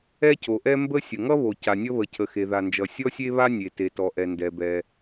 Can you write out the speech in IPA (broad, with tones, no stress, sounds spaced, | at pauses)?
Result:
ɛ˥ c o˩ ʔ ɛ˥ m b ə˥ sʲ ə˩ ŋ ʌ˥ β o˩ c a˩ nʲ ʌ˥ β ə˩ cʰ ə˩ x e˩ ð a˩ n d͡ʒ ʌ˩ sʲ ɔ˥ sʲ e˥ β a˥ nʲ e˩ t e˩ t ɔ˩ ʔ ɛ˩ n d ɛ˩ b ɛ˩